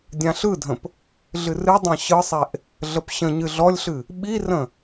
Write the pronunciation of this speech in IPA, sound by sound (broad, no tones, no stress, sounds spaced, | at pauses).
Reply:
dʲ ã ɬ ɯ dʱ ə̃ p | ɮ ɨ r ɨ dˤ ã ɕ ɯ sˤ e ʔ | ɮ ə p ɕ ə̃ ɲ ɨ ɮ ɔ lʲ ɬ ɨ | ɓ i r ə̃